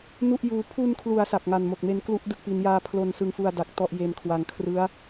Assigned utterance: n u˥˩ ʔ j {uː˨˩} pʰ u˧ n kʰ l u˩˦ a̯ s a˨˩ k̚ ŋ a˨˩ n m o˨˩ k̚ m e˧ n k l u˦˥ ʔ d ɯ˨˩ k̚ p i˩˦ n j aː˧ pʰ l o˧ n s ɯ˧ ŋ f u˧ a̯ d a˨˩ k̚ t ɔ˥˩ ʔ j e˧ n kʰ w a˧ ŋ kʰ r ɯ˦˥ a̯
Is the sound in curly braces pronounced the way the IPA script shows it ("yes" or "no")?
no